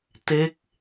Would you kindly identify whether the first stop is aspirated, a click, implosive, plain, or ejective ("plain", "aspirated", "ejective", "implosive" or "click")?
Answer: plain